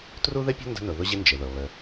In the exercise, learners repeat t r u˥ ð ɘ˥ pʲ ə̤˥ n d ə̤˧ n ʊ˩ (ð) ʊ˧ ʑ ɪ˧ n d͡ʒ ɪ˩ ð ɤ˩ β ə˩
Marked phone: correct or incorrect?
correct